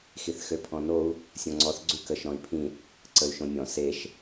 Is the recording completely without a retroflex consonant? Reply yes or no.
yes